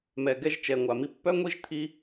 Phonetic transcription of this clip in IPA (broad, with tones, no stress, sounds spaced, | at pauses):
m ɛ˨ ɡ ɛ˧ ʒ t͡ʃ ɛ˨ ŋʷ a˨ m i˦ pː œ˦ ŋʷ i˦ ʒ t̪ʰ i˧